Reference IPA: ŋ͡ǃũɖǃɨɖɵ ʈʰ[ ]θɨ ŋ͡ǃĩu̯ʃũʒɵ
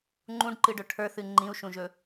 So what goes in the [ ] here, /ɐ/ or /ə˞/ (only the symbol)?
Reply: ə˞